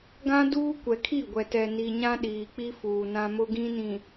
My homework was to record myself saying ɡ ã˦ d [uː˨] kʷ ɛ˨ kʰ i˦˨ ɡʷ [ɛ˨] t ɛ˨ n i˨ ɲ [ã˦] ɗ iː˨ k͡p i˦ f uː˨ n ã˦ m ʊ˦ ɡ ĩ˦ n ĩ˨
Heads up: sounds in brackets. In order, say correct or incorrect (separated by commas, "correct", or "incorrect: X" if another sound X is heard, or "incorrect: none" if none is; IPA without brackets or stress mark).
incorrect: uː˦, correct, correct